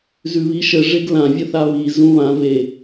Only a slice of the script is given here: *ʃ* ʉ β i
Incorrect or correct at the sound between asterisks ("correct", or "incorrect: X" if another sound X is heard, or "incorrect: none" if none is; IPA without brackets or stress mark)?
incorrect: z